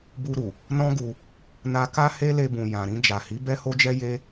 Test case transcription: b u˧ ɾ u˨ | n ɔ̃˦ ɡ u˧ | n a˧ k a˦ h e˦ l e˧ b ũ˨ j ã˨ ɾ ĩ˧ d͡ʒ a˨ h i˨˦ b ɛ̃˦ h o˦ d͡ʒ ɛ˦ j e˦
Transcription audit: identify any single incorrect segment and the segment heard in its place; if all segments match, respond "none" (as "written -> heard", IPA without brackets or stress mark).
ɛ̃˦ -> ɛ˦